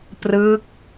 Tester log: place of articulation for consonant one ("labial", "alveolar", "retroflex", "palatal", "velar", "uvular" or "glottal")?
labial